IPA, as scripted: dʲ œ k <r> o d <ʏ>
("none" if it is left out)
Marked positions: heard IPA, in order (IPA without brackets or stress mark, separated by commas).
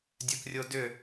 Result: rʲ, ʏ